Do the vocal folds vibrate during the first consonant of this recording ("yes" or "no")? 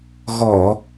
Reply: yes